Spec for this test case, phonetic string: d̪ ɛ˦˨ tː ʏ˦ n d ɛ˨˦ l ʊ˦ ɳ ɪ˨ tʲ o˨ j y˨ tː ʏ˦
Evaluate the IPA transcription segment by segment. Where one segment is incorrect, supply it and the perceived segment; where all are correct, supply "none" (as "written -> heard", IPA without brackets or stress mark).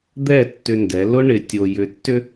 y˨ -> ʏ˨